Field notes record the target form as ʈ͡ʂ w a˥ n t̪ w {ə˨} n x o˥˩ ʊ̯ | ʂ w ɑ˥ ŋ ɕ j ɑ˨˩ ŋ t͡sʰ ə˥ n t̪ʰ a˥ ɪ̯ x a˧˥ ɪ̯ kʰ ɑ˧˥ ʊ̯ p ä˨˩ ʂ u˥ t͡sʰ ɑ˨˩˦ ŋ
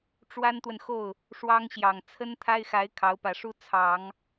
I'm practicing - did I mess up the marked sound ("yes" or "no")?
no